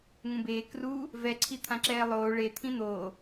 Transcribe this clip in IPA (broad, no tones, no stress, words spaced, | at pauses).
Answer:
ŋũbeː kru | vɛǀʰi t̪ʰãǁɛːlˠoː ɭet̪ʰĩ n̪oː